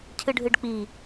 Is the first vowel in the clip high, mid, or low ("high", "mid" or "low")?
high